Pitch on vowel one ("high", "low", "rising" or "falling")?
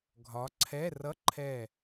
rising